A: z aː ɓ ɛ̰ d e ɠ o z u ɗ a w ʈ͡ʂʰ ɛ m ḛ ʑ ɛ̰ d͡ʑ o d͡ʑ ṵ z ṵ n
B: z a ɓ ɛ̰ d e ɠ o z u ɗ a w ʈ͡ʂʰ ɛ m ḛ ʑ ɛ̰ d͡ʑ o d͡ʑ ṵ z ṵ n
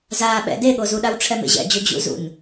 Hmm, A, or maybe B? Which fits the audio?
A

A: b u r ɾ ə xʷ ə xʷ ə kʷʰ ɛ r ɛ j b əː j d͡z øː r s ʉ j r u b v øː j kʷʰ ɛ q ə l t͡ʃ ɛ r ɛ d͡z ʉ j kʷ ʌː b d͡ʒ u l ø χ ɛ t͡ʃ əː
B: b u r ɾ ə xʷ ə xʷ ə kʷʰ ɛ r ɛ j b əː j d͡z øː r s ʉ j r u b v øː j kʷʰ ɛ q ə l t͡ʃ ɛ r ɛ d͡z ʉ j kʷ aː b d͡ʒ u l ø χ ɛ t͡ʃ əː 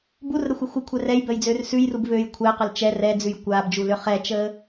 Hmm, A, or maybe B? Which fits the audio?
B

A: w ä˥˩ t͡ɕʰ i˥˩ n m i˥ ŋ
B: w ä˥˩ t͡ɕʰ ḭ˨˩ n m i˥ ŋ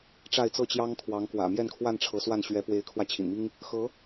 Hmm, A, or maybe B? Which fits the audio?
B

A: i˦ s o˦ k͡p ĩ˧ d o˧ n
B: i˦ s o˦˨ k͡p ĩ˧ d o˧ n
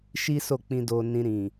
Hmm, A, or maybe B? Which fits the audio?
B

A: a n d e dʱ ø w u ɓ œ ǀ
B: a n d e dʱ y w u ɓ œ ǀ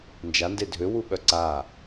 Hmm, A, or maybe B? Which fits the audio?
A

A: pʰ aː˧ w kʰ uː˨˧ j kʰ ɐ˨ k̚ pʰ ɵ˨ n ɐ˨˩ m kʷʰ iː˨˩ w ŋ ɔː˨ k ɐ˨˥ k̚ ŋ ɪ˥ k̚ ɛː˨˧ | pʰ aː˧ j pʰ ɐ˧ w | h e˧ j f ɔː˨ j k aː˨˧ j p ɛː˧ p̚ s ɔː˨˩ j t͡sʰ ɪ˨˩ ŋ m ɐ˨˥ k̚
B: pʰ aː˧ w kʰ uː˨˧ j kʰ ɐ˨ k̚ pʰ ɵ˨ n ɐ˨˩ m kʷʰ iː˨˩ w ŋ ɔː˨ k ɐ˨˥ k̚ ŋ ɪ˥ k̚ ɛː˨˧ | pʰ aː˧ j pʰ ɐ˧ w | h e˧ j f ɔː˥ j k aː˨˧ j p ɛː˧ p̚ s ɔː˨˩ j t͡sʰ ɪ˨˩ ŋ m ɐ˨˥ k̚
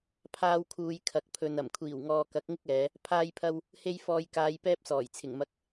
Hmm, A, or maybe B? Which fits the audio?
A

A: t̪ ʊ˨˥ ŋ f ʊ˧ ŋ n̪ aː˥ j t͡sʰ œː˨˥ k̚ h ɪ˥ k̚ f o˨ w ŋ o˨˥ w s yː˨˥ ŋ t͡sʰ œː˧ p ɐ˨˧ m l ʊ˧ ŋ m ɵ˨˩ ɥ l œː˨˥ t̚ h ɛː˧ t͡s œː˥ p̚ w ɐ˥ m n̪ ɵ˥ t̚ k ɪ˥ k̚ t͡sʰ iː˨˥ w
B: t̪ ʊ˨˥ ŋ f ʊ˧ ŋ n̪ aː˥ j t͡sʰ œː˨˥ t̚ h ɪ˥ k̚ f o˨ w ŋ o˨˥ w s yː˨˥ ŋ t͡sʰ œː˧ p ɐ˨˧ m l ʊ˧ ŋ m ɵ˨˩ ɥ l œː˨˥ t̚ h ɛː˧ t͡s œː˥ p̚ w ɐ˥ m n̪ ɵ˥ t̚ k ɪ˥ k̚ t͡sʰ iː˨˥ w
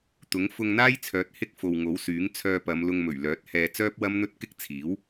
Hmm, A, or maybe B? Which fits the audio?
B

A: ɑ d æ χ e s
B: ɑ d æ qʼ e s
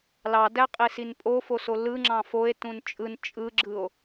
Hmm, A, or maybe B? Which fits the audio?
B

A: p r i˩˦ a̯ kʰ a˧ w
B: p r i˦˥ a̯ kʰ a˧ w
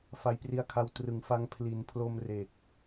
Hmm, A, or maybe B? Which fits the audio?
B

